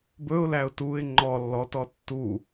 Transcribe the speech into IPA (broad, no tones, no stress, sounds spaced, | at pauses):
b ɵ ʊ̯ l æ ʊ̯ t u ɪ̯ ŋ͡ǃ ɔ lː ɔ t ɔ tː u